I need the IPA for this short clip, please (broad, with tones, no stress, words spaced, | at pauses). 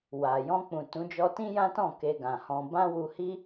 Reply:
wa˨ jɔ̃˧k͡pũ˨ tũ˨˦ d͡ʒɔ˦ tĩ˦jã˦tɔ̃˦˨ ke˧ɡã˨hɔ̃˧ bã˦wu˧ hi˦